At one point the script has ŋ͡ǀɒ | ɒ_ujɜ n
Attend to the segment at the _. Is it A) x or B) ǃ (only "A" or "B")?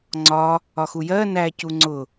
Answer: A